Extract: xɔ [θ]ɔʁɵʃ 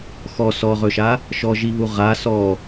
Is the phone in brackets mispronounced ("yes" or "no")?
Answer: yes